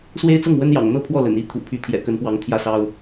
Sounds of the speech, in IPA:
s w e˥ ɪ̯ t͡s ɤ˥˩ ŋ w ə˥ n j ɑ̰˨˩ ŋ n̪ ɤ˥ pʰ w ɔ˥˩ l ə̰˨˩ n i˧˥ t̪ʰ ṵ˨˩ pʰ y˧˥ t̪ʰ j ɛ̰˨˩ k ə˧˥ n p w ɑ˧˥ ŋ t̪ʰ j ä˥˩ s ɑ˥ ʊ̯

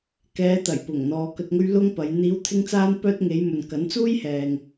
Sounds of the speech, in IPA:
k ɛː˨˧ t̪ ɐ˨˩ j p ʊ˨˩ ŋ n̪ ɔː˨ k ɵ˧ t̚ ŋ ɵ˥ ɥ l ʊ˥ ŋ p ɐ˨˧ j n̪ iː˨˧ w t̪ʰ ɪ˧ ŋ t͡s aː˧ n p œː˧ t̚ ŋ e˨˧ j m ɵ˨ n k ɐ˨˥ n t͡s uː˥ j h ɛː˨ ŋ

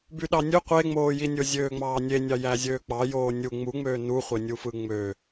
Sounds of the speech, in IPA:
b y ɗ ɑ nʲ ø qʷ e ŋ͡m oː j i nʲ o zʲ øː ŋ͡m ɑː nʲ e nʲ ɑ j æ zʲ øː k͡p ɑ j oː nʲ u ŋ͡m u ŋ͡m øː n u χʷ e nʲ u f ɯ ŋ͡m ø

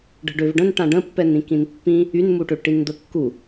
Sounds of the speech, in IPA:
ɖ ə̤ ɖ ø v ɖ ə̃ n ʈ ã ɖ ə̃ pː ɛ n ĩ k ĩ n pː ĩ | y n m u ʈ ø ʈ i n d̪ ə kː u

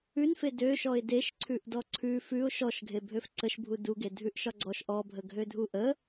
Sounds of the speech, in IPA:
ʉ n f e d ø ʃ ɔ ɪ̯ d e ʃ ǀʰ ʉ ʔ d ɔ ǀʰ ʉ f ʉ ʊ̯ ʃ ɔ ʃ ɡʱ e bʱ ø f ǀ ə ʃ bʱ u d u ɡ e dʱ ʉ ʔ ʃ ɒ ɡ͡ǀ ɔ ʃ ʔ ɔ bʱ ə ɡʱ ø dʱ u ʔ ə

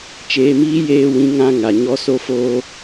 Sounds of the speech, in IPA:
t͡ʃ eː˧ m iː˦ j eː˧ w ĩ˨˦ ŋ ã˧ ŋ a˨ ɲ ɔ˦ s o˦ f oː˦

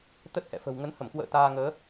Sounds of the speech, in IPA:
t̪ ə˦˥ t̚ h ɛ̰˧˨ f ə̤˨˩ w ŋ ə˨˦ n h ə˧˩ m k w ə̰ː˧˨ t̪ aː˧ ŋ əː˨˦

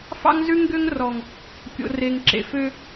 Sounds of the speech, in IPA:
f ɑ̰˦ ŋ z ʉ˦ ŋ ɡ ø˦ ŋ r ɔ˨ ŋ | kʲ o̰˨ r e˨ ŋ ǁ ḛ˨ f ø˦

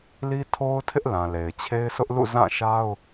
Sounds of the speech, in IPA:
l i˦ tʰ o˦ ʊ̯ tʰ ɪ˦ ʔ l ã˨ l e˨ ɪ̯ t͡ɕʰ e˦ ɪ̯ sʰ ʊ˦ ʔ l ṵ˦˨ z ã˦˨ ʃ a˦ ʊ̯

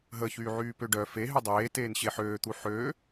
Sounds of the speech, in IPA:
ɦ ə ç yː ʕ yː p ø ɖ œ f e ɦ y dˤ eː t eː n ɕ e ħ øː t̪ u ħ øː

